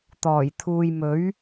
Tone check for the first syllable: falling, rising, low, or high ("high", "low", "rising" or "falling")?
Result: low